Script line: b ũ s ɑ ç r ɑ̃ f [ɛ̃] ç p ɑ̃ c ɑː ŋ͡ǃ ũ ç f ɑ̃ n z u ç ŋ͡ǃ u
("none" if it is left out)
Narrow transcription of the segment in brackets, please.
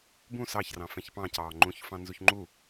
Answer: ɛ̃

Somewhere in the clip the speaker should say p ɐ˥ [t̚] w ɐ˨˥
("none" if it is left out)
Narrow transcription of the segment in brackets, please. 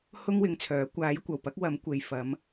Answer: k̚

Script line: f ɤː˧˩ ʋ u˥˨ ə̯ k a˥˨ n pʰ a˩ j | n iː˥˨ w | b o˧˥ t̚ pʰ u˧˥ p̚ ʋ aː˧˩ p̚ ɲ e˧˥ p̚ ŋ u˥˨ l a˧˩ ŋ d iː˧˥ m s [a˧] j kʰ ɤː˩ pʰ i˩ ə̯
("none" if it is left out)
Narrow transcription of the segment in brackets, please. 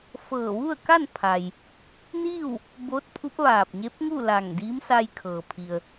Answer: a˧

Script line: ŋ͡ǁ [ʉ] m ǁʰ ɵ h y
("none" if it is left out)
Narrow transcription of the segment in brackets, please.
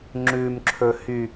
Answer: ʉ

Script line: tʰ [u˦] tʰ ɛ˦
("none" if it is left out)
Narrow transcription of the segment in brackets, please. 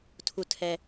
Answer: u˦˨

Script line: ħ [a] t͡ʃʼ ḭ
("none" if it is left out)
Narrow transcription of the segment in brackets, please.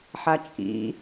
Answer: a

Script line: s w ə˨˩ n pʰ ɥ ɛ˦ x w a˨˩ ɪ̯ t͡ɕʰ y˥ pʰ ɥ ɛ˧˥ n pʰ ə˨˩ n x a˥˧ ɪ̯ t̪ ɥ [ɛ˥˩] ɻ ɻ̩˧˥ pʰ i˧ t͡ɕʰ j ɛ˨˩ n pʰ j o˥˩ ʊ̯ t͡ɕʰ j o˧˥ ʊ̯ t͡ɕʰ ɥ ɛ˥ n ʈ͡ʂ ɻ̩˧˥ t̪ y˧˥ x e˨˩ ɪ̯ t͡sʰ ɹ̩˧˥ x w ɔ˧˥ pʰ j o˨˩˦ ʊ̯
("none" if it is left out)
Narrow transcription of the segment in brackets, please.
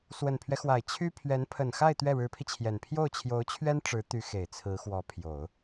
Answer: ɛ˥˩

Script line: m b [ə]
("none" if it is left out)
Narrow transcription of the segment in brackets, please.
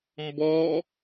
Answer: ɔ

